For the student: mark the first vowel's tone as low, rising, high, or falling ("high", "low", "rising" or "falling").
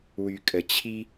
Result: low